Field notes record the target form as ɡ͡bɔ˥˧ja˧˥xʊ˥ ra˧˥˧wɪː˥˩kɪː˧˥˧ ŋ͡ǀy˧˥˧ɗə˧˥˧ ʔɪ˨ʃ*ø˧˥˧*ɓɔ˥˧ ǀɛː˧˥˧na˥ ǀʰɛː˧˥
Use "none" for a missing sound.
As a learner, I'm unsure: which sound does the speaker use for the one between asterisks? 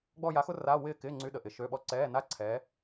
ø˧˥˧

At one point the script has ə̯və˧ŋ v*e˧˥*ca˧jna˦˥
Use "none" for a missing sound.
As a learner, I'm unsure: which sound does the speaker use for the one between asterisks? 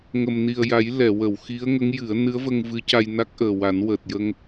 ɨ˧˥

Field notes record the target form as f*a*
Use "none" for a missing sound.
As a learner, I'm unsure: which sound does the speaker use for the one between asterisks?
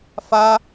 a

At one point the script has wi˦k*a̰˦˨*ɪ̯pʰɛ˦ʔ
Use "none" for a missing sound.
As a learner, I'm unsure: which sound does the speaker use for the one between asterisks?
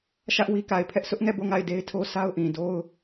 a˨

